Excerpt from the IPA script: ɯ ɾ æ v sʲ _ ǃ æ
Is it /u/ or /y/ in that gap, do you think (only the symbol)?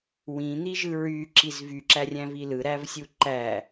u